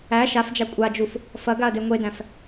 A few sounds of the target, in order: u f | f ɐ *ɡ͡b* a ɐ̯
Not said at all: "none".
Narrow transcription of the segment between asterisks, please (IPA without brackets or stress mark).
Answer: ɡ